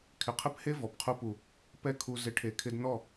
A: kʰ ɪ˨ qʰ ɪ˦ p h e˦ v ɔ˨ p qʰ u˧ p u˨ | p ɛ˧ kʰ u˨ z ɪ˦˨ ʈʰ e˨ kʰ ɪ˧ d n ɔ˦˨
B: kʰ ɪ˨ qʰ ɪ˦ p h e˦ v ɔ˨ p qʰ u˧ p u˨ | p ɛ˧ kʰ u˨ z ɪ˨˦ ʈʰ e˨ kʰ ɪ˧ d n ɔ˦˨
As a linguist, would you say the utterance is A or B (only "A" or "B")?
B